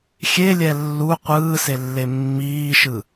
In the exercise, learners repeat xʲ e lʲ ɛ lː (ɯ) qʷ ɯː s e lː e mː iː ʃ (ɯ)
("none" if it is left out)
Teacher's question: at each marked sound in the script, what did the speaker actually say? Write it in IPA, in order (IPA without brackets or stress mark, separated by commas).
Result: u, ɯ